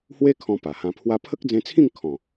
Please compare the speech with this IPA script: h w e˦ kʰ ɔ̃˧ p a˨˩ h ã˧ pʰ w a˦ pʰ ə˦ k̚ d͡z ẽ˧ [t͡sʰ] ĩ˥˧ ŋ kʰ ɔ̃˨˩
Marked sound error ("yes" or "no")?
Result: no